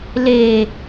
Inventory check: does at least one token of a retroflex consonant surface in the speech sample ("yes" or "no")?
no